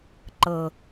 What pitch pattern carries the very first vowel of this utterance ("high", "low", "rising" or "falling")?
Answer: low